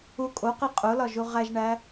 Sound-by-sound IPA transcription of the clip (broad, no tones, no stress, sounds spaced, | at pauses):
u kʼ o q i qʼ o l ɒ ʒ u ʁ æ ʒ ɳ æ